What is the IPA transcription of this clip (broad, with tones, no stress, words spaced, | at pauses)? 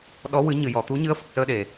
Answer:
ɗɔ˧˥ wɨ˨˩˦ ɲɨ˨˩˨jɔ˨˩˨ t̪u˧˥ɲɨ˧˥ə̯fə˨˩k̚səː˧ ɗe˨˩˨